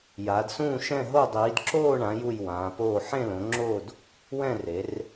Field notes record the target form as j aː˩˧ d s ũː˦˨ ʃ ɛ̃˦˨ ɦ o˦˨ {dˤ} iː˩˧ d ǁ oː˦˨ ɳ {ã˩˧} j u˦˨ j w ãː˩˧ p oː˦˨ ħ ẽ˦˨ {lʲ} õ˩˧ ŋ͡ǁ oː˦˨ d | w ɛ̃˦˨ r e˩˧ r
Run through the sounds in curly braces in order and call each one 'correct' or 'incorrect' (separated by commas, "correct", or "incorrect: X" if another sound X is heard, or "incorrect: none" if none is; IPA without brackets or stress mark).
correct, correct, incorrect: l